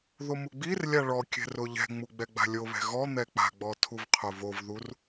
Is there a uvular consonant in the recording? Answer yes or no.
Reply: yes